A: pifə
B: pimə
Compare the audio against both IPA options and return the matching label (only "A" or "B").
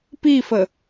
A